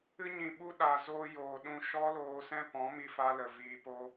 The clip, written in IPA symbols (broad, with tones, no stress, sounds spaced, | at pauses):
ɨ˧ ɲ ĩ˨ ɓ u˧ ɗ a˨ z oː˧ j oː˨ ɗ ũ˧ ʃ ɔ˦ l oː˧ s ɛ̃˦ p ɔ̃˨˦ m i˧ f a˧ l ə˨ v iː˧ p o˦